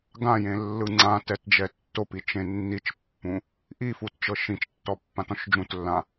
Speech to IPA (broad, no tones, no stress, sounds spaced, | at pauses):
ɡ ã j ẽ lː ɯ ŋ͡ǀ ã t ɛ t d͡ʒ ɛ tː o p i t͡ʃ ẽ nː i t͡ʃ pː ũ | ʔ i f u t t͡ʃ ɤ ʃ ĩ t͡ʃ tː ɔ pː ã t ɔ̃ ʃ d͡ʒ ũ t lː ã